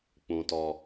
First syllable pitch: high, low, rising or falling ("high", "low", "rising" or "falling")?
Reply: high